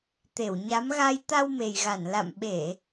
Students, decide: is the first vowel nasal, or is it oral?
oral